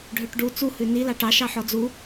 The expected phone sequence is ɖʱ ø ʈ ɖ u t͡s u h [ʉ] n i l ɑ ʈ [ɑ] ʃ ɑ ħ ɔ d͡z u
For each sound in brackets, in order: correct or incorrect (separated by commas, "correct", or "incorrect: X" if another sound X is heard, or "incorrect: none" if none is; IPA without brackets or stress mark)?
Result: correct, correct